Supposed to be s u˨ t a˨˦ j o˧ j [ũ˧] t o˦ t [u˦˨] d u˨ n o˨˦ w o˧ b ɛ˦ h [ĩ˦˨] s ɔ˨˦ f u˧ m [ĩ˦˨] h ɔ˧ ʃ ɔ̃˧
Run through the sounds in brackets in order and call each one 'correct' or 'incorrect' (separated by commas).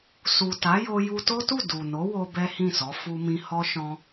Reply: incorrect, correct, correct, incorrect